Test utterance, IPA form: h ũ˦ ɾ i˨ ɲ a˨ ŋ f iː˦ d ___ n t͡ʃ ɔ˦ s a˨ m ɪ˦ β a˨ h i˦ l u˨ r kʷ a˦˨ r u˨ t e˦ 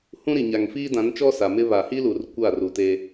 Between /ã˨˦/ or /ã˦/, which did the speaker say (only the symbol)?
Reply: ã˨˦